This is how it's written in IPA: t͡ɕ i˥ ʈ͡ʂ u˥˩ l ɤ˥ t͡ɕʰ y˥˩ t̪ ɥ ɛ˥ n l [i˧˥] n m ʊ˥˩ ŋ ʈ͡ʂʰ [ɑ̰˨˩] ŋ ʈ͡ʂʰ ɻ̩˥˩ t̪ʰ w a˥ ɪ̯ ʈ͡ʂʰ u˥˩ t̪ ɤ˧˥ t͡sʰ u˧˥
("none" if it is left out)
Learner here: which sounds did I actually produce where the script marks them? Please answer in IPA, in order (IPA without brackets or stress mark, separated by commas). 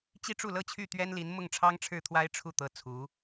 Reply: i˧˥, ɑ˥